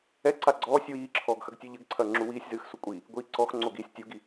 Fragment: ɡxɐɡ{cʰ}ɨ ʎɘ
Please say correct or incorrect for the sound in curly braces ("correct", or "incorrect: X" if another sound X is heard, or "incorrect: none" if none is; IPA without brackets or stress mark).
incorrect: tʲ